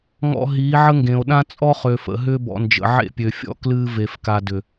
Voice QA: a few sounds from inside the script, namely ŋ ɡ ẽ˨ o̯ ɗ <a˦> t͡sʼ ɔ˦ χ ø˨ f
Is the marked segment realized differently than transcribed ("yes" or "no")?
yes